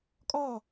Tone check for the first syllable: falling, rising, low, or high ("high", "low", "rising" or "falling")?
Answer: falling